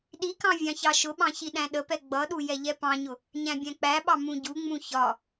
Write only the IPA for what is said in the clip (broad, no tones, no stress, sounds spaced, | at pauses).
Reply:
ɗ i k ɑ̃ vʲ ɑ̃ ç ɑ ʃ ʊ ɓ ɑ̃ ç i ɗ æ̃ ɗ ə p ɛ ɡ͡b ʌ ɗ u j ɛ ʎ ɛ p ɑ̃ ɲ ʊ | ɲ æ̃ bʲ æ̃ k͡p æ ɓ ɑ m ũ ɟ u ŋ͡m ũ ç ɒ